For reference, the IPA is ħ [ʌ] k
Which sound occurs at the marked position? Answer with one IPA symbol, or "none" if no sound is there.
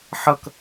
ʌ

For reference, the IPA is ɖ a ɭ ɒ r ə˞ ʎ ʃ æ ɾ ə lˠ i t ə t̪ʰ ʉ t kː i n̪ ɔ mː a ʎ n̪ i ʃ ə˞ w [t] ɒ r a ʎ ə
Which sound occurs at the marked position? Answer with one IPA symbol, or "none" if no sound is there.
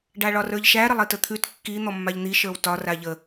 t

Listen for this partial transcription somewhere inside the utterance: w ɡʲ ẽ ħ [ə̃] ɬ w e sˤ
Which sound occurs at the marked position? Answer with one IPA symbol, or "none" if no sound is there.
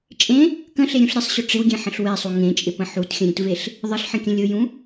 ə̃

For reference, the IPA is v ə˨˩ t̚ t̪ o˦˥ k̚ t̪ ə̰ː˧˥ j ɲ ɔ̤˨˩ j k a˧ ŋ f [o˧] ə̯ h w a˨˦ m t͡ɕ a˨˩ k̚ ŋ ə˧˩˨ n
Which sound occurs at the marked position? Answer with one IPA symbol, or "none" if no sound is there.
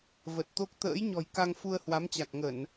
u˧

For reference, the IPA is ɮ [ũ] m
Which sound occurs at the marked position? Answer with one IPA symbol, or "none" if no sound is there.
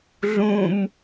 ũ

